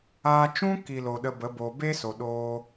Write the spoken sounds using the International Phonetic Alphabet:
aː˧ t͡ʃ ũ˦ k i˨ l o˨ ɗ ə˧ b ə˨˦ b oː˧ b e˦ s o˨ ɗ oː˧

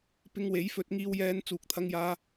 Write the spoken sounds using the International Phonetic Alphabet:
p ɪ˧ ŋ w e˨˥ j f ɵ˧ t̚ ŋ iː˧ w j ɛː˧ n t͡s uː˨ k̚ t̪ʰ ɐ˧ ŋ j aː˧

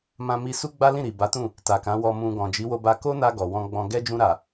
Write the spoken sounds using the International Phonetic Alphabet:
m ã˧ m i˧ s u˦ ɡ͡b a˦ l ĩ˦˨ ɾ i˨ b a˨˦ t ũ˦˨ | t a˨ k ã˨˦ w ɔ˧ m ũ˧ ɡ ɔ̃˨ d͡ʒ i˨˦ w o˧ b a˧ k o˦ n a˧ ɡ ɔ˨ w ɔ̃˧ ɡ͡b ɔ̃˧ ɡ ɛ˦ d͡ʒ ũ˧ ɾ a˨

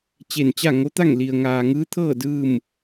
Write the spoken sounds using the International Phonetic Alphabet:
t͡ɕ e˧˩ n t͡ɕ a˥˨ ŋ o˧˥ t̪ a˥˨ ŋ l i˩ ə̯ ŋ aː˩ ŋ ɯː˧˥ t̪ʰ ɤː˥˨ d ɯː˥˨ m

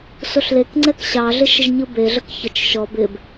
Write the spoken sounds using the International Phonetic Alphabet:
s o ɬ l e k ŋ͡ǀ ɛ k ɕ ɑ ɮ ɪ ʃ ə ʒ ɲ ɯ b e ɮ ə k ç ə t͡ʃ ʃ ɔ b ɪ b

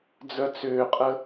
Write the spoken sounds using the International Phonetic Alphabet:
d͡z œ t͡s ʏː qʼ ə

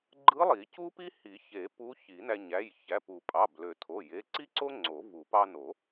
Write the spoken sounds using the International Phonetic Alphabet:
ɡ͡ǃ ɯ˧˥ lˠ i˨˩˦ c u˥ p i˥ h i˨˩˦ ç e˨˩˦ p u˧˥ ç i˨˩˦ n æ˧ ɲ æ˩˧˩ j ç æ˩˧˩ p u˨˩˦ pʼ ɑ˩˧˩ b l ø˨˩˦ tʰ o˩˧˩ j e˩˧˩ ǀ i˥ ǀ o˥ ŋ͡ǀ o˨˩˦ v u˨˩˦ p ɑ˧ n o˨˩˦

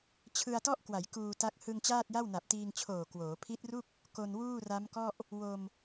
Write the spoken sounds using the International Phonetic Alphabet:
t͡ɕʰ ɯ˧ a̯ t ɔ˥˩ ʔ k w a˩˦ j k uː˧ t a˦˥ k̚ h ɯ˧ ŋ t͡ɕ aː˥˩ t̚ j a˥˩ w n a˨˩ p̚ t iː˧ ŋ t͡ɕʰ oː˨˩ k w oː˩˦ pʰ i˦˥ t̚ r u˥˩ k̚ | k o˧ n w uː˥˩ r a˦˥ m k ɔ˥˩ ʔ | w o˧ m

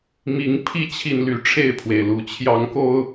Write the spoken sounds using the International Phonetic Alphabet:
m i˨˦ ŋ pʰ i˦ t͡ɕʰ i˨ n l y˨˦ ʈ͡ʂʰ e˥˨ ɪ̯ pʰ w e˩ ɪ̯ l u˨˦ t͡ɕʰ j ɑ˨˦ ŋ k o˧ ʊ̯

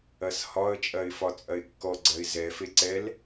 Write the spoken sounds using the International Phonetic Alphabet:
ɐ s h ɒ ə̯ t͡ʃʼ ɐ ɪ̯ f ɒ t͡sʼ ɐ ɪ̯ kː ɔ ɡ͡ǀ ɐ ɪ̯ z ɛ f e ǀ ɛ l

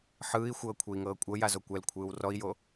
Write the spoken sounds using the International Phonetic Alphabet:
ħ ɯː i̯ xʷ ɤː kʷʰ ɯ i̯ ŋ ɤː kʷʼ ɤ j a z o kʷ ɛ l kʷʰ ɯː w r ɔ i̯ j o

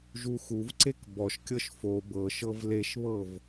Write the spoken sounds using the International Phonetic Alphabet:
ʒ u x u v ǀ e k b ɔ ʃ kʲ ɤ ʃ f o b ɤ ʃ ɤ v l e ʃ β ɤ v

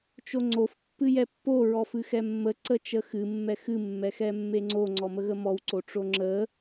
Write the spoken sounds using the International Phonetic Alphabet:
t͡ʃ o ŋ͡ǀ o f pː ɨ j ɛ pː o ɹ ɔ f ɨ x ɛ mː ə ǀ ə t͡ʃ ə x ɨ mː ɛ x ɨ mː ɛ x ɛ mː e ŋ͡ǀ o ŋ͡ǀ ɔ m ə ɣ ə m ɔ w ǀ o ʈ͡ʂ o ŋ͡ǁ ə

